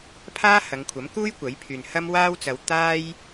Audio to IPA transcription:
pʰ aː˥ h ɐ˨˧ ŋ kʷʰ ɐ˨˥ m k uː˥ j kʷ ɐ˨˥ j pʰ yː˨ n h ɐ˥ m w aː˥ w t͡s ɐ˨˧ w t̪ aː˧ j

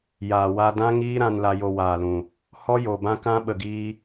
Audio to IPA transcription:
j aː˨ w a˧ d ã˦ ŋ iː˦ ɾ ã˧ n l a˧ j o˧ w aː˨ l ũ˨ | h ɔ˦ j o˨ b ã˦ k ã˦ ɓ ə˨ ɡ iː˧

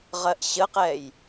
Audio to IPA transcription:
ʁ ɜ ʔ ɕ ə q ɛ j

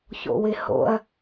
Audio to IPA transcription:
ç o̰ w ɪ h o̰ ɐ̯

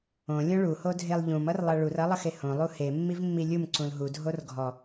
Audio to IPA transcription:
õ lʲ õ ɭ u h o dʱ e lˠ ʎ ũ m ʌ r lˠ ʌ ɭ u r ʌ lˠ ʌ x e h õ lˠ u h e mː i v mː i lʲ u m ǀ ũ l ɦ u dʱ o r ɡʱ ɔ

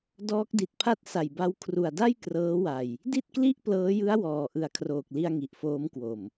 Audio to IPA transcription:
d ɔː˦˥ k̚ d i˨˩ t̚ pʰ a˥˩ t̚ s a˨˩ j b a˧ w kʰ r u˨˩ a̯ d a˥˩ j k r ɤː˦˥ w a˨˩ j | d i˥˩ t̚ k l i˥˩ ʔ p l ɤː˦˥ j ɯ˦˥ a̯ w ɔː˨˩ ʔ ɯ˨˩ a̯ kʰ r oː˨˩ k̚ l i˧ a̯ ŋ i˨˩ ʔ f oː˦˥ m k w o˨˩ m

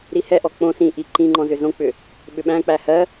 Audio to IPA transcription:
ɾ i h ɛ ʔ ɔ k͡p õ s ĩ ʔ i ǃ ĩ ŋ͡ǃ ɔ̃ z ʏ z õ k͡p ʏ | ɓ ʏ ɓ æ̃ k͡p æ h ɜ

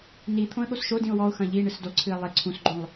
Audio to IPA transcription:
n i t̪ʰ õ ə̯ ɠ o s ʃ o d ĩ ʊ̯ w ɔ ʊ̯ x ɐ̃ ʎ i ɳ ɨ s d o ǀʰ ɨ ɪ̯ lˠ e ǀʰ ũ s ɡ͡ǃ õ lˠ

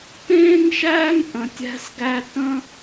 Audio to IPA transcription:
t ẽː˦ ŋ ʃ æː˦ ŋ ʔ ə̃˨ tʲ æ̤˦ s ɡ æ˦ t ə̃˦

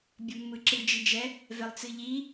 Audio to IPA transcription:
bʲ ɒ mː ɯ ǁ ɨ d͡ʒ i d͡ʒ ɛ | v ɛ lˠ t͡s ɨ ʎ i

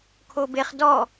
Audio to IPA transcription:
kʰ o b e χ d ɔ

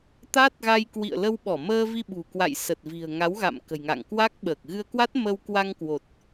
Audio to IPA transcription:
t̪ a˦˥ t̚ ɣ a˧ j k w ḭ˧˨ ə̯ l ə˧ w ɓ ɔ˧˩ m əː˧ v i˧ ɓ ṳ˨˩ k w a̰˧˨ j s ə˨˩ t̚ v i̤˨˩ ə̯ ŋ a˨˦ w ɣ a̰˧˨ m k ə̤˨˩ j ŋ a̰˧˨ ŋ k w a˦˥ k̚ ɓ əː˨˩ k̚ ɣ ɨ˧ ə̯ k w a˦˥ t̚ m ə˧ w k w a˧ ŋ k w o˨˩ t̚

